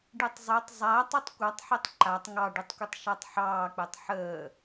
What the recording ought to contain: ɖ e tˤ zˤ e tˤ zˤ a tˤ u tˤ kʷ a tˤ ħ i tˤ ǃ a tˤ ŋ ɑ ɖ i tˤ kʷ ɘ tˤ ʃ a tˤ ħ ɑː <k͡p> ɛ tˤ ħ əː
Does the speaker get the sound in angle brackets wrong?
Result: no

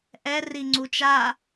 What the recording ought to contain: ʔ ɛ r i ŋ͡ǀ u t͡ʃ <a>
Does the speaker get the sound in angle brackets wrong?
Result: no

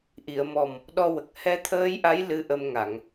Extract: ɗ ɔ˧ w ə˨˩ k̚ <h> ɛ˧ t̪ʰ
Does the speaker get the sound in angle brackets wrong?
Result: no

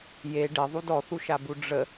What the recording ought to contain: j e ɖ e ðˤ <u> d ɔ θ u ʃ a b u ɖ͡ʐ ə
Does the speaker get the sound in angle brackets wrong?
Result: no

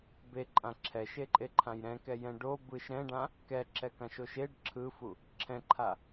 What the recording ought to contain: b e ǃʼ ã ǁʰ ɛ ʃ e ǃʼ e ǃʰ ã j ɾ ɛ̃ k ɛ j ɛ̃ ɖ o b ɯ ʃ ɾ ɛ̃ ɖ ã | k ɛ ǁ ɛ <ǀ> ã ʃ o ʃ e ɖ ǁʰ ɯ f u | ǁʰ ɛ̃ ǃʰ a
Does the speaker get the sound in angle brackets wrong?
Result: yes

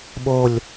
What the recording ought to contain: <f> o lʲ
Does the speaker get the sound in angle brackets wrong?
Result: yes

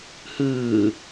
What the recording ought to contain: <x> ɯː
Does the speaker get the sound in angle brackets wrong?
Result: yes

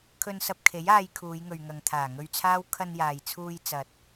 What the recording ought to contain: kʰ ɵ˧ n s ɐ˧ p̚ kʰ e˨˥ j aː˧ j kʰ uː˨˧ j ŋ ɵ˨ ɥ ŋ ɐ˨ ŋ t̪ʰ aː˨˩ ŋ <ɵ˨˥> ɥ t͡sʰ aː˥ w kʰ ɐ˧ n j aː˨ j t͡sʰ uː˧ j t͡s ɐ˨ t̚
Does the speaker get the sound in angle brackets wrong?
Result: yes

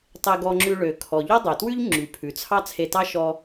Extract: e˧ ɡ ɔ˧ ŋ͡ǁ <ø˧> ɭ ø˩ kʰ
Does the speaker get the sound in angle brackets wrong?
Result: yes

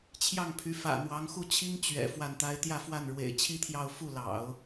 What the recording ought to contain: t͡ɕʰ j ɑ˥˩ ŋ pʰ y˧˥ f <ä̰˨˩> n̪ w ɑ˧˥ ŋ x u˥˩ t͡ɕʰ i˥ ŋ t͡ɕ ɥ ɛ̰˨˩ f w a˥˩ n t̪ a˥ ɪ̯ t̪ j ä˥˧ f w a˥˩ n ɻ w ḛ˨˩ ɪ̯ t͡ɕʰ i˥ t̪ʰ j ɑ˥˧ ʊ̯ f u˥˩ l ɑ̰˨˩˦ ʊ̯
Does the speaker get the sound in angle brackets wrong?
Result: no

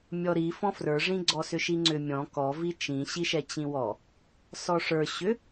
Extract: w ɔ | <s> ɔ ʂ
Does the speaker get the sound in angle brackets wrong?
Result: no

